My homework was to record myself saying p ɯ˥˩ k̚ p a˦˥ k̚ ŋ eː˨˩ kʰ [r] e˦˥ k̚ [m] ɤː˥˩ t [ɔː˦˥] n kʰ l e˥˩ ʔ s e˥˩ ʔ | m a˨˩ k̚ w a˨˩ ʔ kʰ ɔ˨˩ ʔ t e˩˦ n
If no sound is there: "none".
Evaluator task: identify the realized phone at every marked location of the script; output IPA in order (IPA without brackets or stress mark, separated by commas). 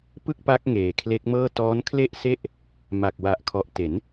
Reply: l, m, ɔː˦˥